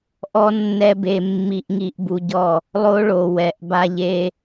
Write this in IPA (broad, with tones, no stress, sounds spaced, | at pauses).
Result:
ʔ ɔ˦ nː ɛ˦ b e˧ mː i˧ ʔ ŋ i˧ ʔ b u˧ ɟ ɔ˦˨ | lˠ o˦ ɭ o˨ w ɛ˨ ʔ b a˧ ʎ e˦